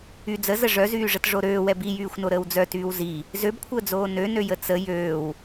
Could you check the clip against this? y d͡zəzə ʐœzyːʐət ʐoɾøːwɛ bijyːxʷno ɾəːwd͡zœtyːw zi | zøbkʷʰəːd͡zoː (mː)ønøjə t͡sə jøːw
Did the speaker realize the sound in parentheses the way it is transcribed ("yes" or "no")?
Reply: no